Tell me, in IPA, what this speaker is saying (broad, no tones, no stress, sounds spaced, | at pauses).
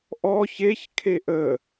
ʔ ɔ ç e ç kʰ e ʔ ə